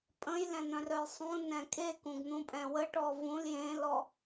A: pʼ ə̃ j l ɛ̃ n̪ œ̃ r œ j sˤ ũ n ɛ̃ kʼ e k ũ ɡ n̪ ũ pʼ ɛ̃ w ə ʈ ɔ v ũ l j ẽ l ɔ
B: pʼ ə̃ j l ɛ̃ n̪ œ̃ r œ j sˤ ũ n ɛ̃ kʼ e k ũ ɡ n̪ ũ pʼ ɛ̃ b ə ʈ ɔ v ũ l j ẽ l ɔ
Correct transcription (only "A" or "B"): A